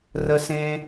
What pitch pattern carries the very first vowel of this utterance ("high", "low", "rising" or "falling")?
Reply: high